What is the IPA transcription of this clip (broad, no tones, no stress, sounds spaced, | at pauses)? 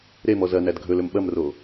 ɾ e m ɔ z ɐ n æ d ɡʱ ɵ l ɵ m ɓ ɐ m r o